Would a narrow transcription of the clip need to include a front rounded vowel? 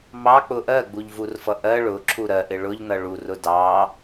no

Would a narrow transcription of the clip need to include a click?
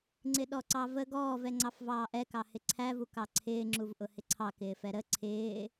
yes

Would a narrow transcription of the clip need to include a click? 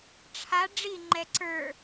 yes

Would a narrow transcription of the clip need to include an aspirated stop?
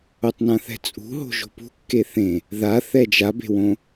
no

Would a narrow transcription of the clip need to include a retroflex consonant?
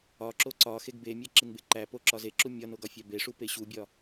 yes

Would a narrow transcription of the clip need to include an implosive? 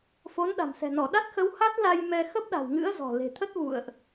yes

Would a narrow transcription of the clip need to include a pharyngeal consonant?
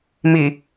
no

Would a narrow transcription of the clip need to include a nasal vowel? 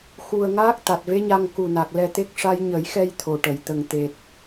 no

